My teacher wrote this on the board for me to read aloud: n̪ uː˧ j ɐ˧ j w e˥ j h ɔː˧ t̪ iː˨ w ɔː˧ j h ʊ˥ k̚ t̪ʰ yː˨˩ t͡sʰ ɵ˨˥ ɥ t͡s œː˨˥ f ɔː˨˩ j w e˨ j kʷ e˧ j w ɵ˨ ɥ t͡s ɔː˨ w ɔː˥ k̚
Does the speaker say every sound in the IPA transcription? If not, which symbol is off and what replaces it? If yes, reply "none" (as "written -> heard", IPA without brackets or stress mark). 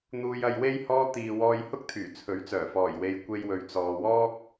œː˨˥ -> œː˨˩